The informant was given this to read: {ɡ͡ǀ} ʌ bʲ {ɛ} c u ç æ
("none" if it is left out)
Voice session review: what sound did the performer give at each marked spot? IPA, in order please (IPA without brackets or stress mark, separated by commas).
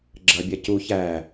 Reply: ɡ͡ǁ, ɛ